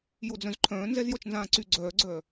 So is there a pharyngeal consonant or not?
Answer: no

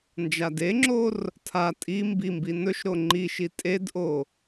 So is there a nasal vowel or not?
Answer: no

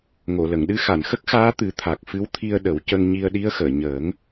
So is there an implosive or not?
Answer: yes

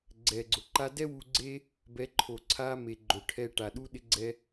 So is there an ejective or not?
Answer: no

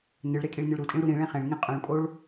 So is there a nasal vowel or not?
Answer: yes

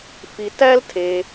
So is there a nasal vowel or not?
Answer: no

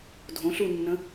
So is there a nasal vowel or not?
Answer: yes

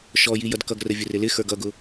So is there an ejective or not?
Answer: no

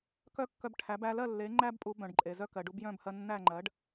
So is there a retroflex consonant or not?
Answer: yes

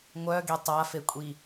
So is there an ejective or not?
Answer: yes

